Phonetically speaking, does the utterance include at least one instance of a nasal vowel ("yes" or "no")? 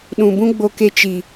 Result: yes